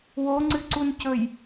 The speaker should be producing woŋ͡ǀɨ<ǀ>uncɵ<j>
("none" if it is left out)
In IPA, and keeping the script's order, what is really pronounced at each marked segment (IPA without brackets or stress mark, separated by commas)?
ǀ, j